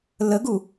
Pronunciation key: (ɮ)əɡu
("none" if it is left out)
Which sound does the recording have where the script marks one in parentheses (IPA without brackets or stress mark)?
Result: l